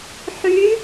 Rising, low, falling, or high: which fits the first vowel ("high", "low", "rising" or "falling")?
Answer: rising